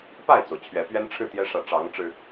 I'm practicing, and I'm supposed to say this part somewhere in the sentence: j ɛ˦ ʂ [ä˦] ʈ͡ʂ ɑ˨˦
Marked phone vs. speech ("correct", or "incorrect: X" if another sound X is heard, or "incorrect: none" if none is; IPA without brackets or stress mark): incorrect: ä˨˦